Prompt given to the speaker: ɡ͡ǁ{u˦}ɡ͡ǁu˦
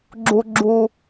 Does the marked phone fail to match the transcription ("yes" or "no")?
no